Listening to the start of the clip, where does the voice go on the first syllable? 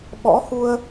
rising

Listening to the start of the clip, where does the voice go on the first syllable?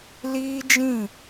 high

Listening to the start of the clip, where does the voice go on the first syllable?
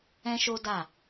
high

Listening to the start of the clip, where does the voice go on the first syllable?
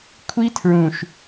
high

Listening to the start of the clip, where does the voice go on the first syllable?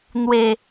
low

